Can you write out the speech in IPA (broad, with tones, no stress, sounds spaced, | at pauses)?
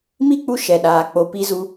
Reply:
m i˦ k͡p u˧ ʃ ɛ˨ ɗ aː˨ k͡p o˨ p i˧ z u˧